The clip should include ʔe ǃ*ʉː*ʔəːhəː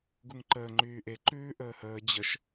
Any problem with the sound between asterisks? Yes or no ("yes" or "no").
no